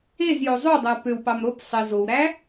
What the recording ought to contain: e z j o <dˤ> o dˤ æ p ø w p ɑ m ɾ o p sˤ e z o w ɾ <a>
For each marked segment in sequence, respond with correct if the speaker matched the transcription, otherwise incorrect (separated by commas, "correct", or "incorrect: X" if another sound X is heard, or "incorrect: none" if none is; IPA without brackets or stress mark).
incorrect: zˤ, incorrect: æ